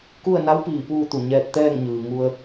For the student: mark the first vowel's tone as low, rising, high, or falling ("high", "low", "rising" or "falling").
falling